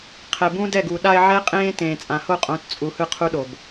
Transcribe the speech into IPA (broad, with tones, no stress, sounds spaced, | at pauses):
qʰ ɛ˨ b ũ˦ d ɛ˦˨ ɡ u˨ ɗ a˧ ɪ̯ ʕ ɛ˦ qʼ ẽː˦ t ẽː˨ t͡sʼ ã˨ h o˦˨ qʼ õ˨˦ t t͡sʼ u˨ h ɯ˧ qʰ u˦ ɗ o˨ b